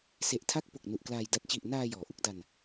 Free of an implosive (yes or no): yes